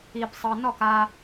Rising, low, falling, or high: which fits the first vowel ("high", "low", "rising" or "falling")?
low